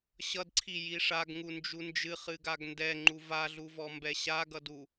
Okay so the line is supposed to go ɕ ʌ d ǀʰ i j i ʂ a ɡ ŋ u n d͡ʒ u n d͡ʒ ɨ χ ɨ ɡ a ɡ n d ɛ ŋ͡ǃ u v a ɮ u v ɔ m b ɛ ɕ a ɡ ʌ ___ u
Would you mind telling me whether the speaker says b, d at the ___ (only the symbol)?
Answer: d